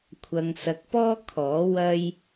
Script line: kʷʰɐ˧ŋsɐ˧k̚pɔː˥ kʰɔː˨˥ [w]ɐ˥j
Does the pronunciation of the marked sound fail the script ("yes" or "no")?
no